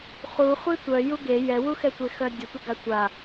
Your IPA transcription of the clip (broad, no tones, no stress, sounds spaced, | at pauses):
χ u χʷ i tʷ œ j u ɡ e j ɛ w u x ɛ tʷ e x œ dʲ ə tʷ ə ɡ a tʷ a